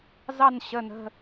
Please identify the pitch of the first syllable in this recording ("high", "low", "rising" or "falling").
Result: falling